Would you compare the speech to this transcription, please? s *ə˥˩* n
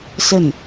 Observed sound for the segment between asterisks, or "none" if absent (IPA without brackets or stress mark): ə˥˩